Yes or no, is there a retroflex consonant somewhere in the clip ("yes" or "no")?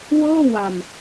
no